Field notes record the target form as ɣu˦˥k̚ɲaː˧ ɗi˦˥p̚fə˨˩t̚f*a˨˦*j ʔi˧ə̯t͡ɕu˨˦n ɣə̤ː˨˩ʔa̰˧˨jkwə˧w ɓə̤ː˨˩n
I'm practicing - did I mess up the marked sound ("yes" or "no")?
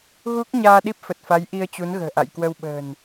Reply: no